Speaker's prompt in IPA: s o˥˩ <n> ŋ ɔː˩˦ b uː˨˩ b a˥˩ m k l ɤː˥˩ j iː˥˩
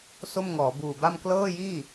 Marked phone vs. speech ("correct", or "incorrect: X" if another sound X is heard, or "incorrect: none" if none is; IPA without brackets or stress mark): incorrect: m